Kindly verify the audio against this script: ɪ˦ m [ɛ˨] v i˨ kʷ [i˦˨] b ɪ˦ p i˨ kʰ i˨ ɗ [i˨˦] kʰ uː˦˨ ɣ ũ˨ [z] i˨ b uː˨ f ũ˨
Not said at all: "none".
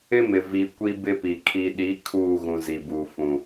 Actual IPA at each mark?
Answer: ɪ˨, i˦, i˨˦, z

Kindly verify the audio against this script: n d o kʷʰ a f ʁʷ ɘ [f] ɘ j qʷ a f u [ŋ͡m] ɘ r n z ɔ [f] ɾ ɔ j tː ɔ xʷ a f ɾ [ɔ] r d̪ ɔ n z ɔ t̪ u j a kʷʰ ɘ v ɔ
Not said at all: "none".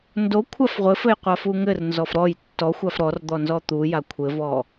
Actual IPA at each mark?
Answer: f, ŋ, f, ɔ

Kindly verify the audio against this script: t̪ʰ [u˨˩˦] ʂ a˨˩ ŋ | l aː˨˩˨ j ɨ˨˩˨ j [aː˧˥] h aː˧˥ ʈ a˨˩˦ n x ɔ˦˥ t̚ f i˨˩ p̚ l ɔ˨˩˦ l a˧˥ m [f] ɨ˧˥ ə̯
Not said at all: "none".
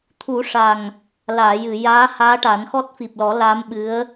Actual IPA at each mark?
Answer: u˨˩˦, aː˧˥, ɓ

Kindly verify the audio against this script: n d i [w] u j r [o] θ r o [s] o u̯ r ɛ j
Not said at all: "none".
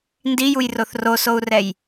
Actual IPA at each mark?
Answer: j, o, s

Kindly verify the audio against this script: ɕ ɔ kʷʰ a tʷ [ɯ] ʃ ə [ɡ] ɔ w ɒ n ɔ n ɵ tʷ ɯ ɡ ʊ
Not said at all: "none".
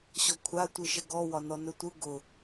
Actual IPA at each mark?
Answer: ɯ, ɡ

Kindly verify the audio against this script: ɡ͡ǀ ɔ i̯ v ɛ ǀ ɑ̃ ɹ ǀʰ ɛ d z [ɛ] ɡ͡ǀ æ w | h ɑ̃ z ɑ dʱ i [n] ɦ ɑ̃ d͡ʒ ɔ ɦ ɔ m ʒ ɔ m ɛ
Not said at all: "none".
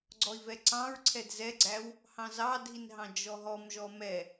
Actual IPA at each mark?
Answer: ɛ, n

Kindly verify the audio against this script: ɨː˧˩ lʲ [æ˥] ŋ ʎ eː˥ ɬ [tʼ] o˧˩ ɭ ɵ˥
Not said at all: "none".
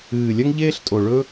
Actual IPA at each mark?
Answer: ɐ˥, tʼ

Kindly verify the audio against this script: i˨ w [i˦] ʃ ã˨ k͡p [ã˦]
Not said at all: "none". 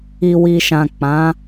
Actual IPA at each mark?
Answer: i˨, ã˨˦

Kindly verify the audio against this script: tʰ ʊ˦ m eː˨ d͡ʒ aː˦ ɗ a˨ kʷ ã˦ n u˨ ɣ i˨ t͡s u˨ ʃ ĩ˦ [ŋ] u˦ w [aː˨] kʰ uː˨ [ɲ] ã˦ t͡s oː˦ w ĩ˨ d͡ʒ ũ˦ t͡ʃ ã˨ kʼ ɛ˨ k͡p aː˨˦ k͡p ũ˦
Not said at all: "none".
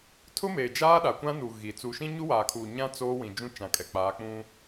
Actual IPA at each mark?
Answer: ɲ, aː˨, ɲ

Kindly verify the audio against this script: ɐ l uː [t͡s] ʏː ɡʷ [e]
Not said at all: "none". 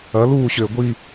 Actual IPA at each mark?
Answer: ɕ, i

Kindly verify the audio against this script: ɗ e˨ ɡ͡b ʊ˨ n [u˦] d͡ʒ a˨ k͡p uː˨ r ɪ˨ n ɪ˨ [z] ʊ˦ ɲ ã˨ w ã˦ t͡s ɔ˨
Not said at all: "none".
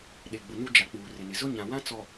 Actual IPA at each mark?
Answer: u˦, z

